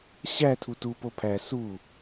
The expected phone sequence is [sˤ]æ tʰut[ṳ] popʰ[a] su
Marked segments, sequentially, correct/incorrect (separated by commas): incorrect, incorrect, incorrect